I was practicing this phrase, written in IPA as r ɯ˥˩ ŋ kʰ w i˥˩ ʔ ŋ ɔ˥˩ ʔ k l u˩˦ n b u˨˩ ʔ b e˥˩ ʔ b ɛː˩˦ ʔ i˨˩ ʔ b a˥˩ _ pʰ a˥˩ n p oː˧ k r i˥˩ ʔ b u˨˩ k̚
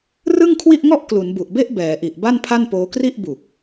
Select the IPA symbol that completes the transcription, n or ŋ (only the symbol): n